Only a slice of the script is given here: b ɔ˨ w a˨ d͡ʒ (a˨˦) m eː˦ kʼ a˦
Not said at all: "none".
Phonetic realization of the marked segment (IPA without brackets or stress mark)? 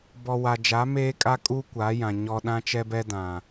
a˨˦